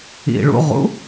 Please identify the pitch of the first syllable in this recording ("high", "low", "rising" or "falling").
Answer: low